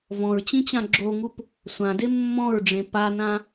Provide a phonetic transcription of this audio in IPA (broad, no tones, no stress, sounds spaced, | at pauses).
v ɔ̃ ɹ t͡ɕ ĩ t͡ɕ ã ɡ͡ǁ o ŋ u p | sʷ ã d e mː ɔ̃ ɹ ɖ͡ʐ ẽ p a n ã